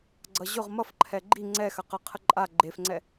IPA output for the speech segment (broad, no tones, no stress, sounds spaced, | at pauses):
ɡ͡ǀ ʌ ʑ ʊ ʁ m ʌ f ǃʰ ɛ ɡ͡ǃ i ŋ͡ǀ ɛ x ɐ q ɐ qʰ ə ǃʼ a ɡ͡ǃ e f ŋ͡ǀ ɛ